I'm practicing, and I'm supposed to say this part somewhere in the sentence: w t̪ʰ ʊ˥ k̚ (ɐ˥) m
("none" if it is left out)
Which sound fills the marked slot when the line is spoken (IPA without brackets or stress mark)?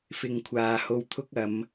ɐ˨˧